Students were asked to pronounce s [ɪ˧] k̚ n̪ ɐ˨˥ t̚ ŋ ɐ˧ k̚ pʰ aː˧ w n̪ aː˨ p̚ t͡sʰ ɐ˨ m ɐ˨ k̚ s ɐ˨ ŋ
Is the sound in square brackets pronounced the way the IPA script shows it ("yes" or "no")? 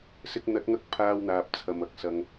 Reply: yes